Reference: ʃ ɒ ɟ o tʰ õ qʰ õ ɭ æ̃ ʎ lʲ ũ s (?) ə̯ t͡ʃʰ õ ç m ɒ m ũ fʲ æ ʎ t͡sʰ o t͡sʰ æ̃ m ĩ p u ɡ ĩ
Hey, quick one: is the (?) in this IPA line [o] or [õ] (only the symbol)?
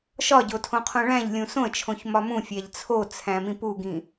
õ